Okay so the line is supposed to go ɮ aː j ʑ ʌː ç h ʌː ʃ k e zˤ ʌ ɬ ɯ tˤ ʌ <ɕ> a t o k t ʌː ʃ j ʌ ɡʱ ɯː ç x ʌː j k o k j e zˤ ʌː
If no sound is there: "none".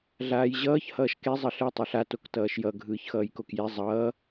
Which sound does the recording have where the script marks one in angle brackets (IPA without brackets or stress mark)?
ɬ